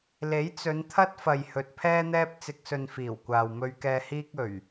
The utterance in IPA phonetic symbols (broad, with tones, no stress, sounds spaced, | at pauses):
l e˨˥ j t͡s ɵ˨˧ n t̪ʰ ɐ˥ t̚ f ɐ˨ j h ɵ˨ t̚ pʰ ɛː˥ n̪ ɛː˥ p̚ t͡s ɪ˧ k̚ s ɵ˧ n f iː˨˩ w kʷ aː˨ w m ɵ˧ ɥ k ɛː˧ h iː˥ k̚ ɵ˨˩ ɥ